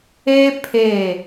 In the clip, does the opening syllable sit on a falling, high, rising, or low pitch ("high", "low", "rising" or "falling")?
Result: high